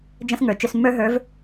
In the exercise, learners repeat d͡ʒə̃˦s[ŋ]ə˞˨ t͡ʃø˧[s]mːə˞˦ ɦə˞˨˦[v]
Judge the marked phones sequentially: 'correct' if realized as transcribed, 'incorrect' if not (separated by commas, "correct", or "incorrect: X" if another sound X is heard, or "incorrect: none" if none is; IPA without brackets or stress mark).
correct, correct, correct